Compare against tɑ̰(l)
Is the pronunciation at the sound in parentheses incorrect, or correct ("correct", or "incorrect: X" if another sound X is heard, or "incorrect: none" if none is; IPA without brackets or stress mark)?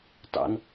incorrect: n